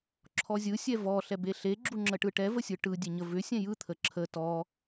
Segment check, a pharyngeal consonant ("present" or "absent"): absent